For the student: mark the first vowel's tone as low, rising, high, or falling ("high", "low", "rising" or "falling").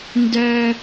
high